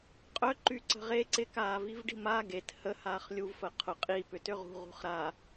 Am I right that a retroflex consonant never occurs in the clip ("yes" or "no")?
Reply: no